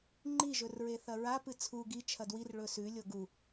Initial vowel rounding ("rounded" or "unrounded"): unrounded